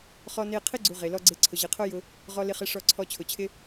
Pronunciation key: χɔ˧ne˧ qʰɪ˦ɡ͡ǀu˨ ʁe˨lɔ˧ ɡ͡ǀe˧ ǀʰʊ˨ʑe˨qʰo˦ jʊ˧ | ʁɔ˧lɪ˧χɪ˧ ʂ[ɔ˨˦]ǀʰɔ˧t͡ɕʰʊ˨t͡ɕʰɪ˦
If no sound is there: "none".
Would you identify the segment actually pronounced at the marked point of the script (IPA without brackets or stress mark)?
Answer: ɔ˧